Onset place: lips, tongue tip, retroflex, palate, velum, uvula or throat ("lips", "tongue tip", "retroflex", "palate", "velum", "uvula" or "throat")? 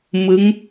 lips